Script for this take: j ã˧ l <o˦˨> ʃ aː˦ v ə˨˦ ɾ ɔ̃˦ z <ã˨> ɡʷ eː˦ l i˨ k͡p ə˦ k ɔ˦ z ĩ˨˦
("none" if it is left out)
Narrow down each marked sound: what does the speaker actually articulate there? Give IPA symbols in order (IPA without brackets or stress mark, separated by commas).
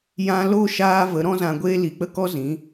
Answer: o˦˨, ã˧